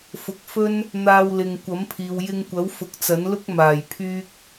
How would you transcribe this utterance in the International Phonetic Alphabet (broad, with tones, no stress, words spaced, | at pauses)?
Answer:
fʊ˨˥k̚fɵ˥n | n̪aː˧wlɪ˨ŋ kʷɐ˨˥mpʰiː˨w jɪ˧ŋkʷɐ˨˥w fʊ˨˥k̚t͡sɐ˨˥nlʊ˥k̚ maː˨˩jpʰyː˧k̚